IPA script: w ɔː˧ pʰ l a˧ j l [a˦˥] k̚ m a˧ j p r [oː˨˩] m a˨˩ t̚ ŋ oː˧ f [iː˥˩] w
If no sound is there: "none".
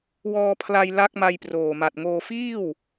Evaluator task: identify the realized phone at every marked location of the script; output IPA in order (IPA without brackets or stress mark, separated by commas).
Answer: a˦˥, oː˨˩, iː˥˩